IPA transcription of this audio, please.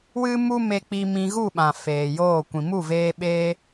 w ɨ˦ m u˦ m e˧ k͡p i˧ m ĩ˧ ɣ u˦˨ ɓ ã˨ f eː˨ j oː˦˨ kʷ ĩ˨ m u˦˨ v eː˧ ɓ eː˧

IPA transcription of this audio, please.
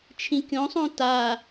t͡ʃʰ ĩ kʲ õ sˤ õ t a

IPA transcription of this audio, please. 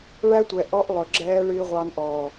ɭ æ˦ tʷ ɛ˨ ʔ ɔ˦ ʔ lˠ ɵ˨ ɡ͡ǁ ɛː˦ ɭ ɨː˦ ʁʷ ɑ˦ n ʔ ɔː˨

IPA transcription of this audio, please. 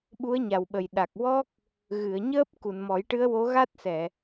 ɓ u˧˥ ə̯ ɲ a˨˩ w ɓ ə˨˩ j ɗ a˨˩ k̚ w ɔ˦˥ k̚ | ɣ ɨ˨˩˨ ə̯ ɲ əː˦˥ p̚ k u˨˩˨ n m ɔ˨˩˦ j ʈ ɨ˧˥ ə̯ w o˧˥ ɣ a˦˥ t̚ s ɛ˨˩˨

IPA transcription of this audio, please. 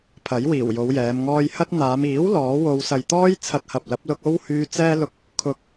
pʰ ɐ˨˥ j w iː˨˩ w j o˨˧ w j ɛː˨˧ m ŋ ɔː˧ j h ɐ˥ t̚ n̪ aː˨˧ m iː˨˥ w l ɔː˨˥ w o˧ w s ɐ˨ j t̪ ɔː˥ j t͡sʰ ɐ˧ t̚ h ɐ˨ p̚ l ɐ˨˥ p̚ l ʊ˧ k̚ o˥ w h yː˧ t͡s ɛː˥ l ʊ˧ k̚ | kʰ ʊ˨˥ k̚

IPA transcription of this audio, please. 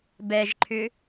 b ɛ ʒ ǃʰ ʏ

